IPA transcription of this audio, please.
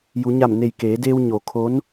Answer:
j u˩˧ ɲ a˧˩ m n e˧˩ j k eː˩˧ d eː˧ w ɲ o˩˧ kʰ o˧˥ n

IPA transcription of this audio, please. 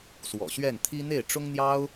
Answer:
s w ɔ̰˨˩ ɕ ɥ ɛ˥˩ n t̪ʰ i˥ n̪ e˥˩ ɪ̯ ʈ͡ʂ ʊ˥ ŋ n̪ j ɑ˥ ʊ̯

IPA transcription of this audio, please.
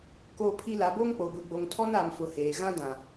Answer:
k oː˦ pʰ i˦ l a˨˦ b o˦ ŋ k͡p o˨ ɡʷ i˦ ɡ͡b o˦ ŋ tʰ ɔ˦ n aː˨ m f ʊ˨ h eː˨ ɣ ã˦ d ã˨

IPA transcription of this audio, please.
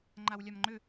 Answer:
ŋ͡ǃ a w lʲ a m ŋ͡ǃ ʏ

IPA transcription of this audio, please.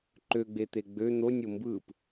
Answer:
ǃ ø ɡ͡b e t̪ e ɡ͡b ø n̪ o nʲ o m b ɯ p

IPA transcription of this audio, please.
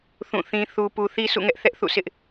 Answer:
θ ũ˦˨ θ ĩ˦ θ u˨ p u˨ θ i˦ sʰ ṵ˦˨ ŋ ɛ˦ ʔ θ ɛ˦ ʔ θ ṵ˦˨ s ɪ˦ ʔ

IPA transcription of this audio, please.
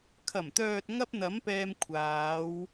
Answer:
kʰ ɐ˨˩ m t̪ œː˨ t̚ ŋ ɐ˥ p̚ n̪ ɐ˨˥ m p ɛː˧ m kʷʰ aː˨˧ w

